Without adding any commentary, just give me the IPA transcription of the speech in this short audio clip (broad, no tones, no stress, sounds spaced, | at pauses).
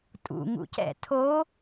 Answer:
tʼ ṵ ŋ ṵ c ɛ̰ tʰ o